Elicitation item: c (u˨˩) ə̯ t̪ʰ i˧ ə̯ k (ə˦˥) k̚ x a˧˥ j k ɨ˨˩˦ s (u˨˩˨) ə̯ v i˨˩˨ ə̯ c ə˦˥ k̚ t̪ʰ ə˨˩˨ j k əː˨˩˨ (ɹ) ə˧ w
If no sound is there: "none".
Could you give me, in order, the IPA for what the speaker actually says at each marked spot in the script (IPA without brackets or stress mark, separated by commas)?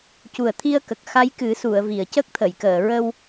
u˨˩, ə˨˩, u˨˩˨, ɹ